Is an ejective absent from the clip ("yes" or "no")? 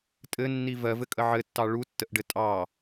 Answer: no